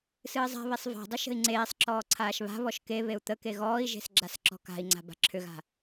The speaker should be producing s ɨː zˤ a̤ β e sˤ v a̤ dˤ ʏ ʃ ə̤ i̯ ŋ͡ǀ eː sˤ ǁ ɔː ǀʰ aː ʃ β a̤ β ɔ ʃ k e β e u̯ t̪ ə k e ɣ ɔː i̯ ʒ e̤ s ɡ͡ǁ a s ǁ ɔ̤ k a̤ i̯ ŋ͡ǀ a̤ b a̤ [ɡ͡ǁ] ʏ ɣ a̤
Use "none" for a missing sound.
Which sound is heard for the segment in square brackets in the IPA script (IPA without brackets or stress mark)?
ǁʰ